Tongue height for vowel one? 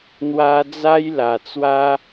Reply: low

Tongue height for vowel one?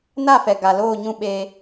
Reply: low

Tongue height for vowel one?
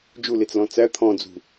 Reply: high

